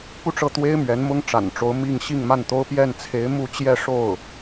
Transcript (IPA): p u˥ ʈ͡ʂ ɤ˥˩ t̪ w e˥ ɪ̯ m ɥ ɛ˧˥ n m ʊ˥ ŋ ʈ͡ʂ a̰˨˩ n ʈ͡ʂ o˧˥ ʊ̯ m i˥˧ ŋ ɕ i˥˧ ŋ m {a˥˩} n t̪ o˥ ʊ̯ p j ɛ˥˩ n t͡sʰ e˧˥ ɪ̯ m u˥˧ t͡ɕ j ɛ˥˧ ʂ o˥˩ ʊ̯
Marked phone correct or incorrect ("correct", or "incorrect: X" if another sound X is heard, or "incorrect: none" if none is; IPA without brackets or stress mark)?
correct